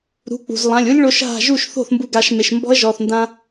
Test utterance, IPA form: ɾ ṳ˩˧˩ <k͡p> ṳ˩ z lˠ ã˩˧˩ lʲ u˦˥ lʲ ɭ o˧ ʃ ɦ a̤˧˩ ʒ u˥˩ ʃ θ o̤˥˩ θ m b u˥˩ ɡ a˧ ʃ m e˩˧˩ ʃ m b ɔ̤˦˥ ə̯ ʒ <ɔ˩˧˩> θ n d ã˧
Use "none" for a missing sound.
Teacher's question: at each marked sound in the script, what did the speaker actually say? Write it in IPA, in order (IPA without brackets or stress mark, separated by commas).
k͡p, ɔ˩˧˩